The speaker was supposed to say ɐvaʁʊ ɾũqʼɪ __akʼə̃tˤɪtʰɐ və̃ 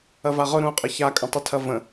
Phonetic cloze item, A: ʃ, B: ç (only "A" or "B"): B